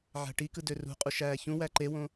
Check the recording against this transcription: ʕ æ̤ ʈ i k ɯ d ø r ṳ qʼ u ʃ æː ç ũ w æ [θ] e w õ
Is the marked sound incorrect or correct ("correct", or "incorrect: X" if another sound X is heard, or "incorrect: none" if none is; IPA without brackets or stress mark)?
incorrect: ǃ